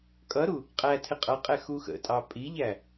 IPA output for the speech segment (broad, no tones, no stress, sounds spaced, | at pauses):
kʼ ʌ ɾ u | qʼ æ tʰ ɪ qʼ ʌ qʼ ɛ x u x ə̰ tʼ ɑ pʼ i ʎ æ